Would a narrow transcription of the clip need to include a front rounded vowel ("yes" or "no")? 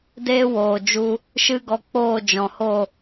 no